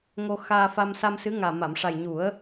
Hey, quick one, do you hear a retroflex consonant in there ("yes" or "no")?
yes